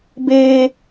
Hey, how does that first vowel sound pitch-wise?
high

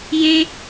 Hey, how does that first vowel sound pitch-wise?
high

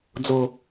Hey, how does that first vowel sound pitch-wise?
low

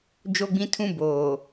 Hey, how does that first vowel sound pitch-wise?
high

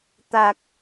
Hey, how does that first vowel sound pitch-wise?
low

